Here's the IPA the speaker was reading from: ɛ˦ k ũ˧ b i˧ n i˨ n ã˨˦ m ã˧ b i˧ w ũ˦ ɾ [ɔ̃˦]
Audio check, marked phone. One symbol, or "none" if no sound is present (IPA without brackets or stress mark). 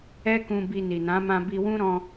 ɔ̃˧